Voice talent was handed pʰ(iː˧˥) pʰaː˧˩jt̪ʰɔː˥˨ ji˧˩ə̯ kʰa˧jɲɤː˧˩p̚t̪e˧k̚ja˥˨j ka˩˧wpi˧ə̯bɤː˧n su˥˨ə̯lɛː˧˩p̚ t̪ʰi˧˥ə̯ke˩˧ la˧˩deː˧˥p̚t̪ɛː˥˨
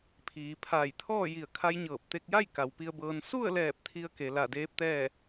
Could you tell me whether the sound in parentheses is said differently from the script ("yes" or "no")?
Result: yes